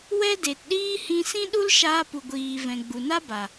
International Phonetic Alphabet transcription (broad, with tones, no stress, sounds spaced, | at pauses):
w ɛ˦ d e˨ t ɗ iː˦ h ĩ˧ s ĩ˦ ɗ u˦ l ʃ aː˧ p u˨ ɡʷ iː˨ v ɛ̃˨ ɡ͡b u˨ n a˦ b a˨